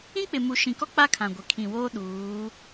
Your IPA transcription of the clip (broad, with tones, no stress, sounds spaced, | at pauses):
ĩ˦ k͡p ɪ˨ m u˨ ʃ ĩ˨ k ɔ˦ k͡p a˦ kʰ ã˨ ɡʷ e˨ kʰ ĩ˨ w oː˦ ɗ uː˨˦